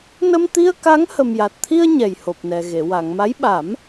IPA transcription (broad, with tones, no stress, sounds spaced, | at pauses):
n ə˧ m t̪ i˧ ə̯ k a˧˥ ŋ h ə˨˩ m j a˨˩ t̚ t̪ʰ i˧ ə̯ ɲ ɛ˨˩ j h o˨˩ p̚ n ɛ˨˩ ɣ e˨˩˨ w a˨˩˨ ŋ m a˧˥ j ɓ a˨˩˦ m